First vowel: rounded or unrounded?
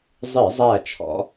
unrounded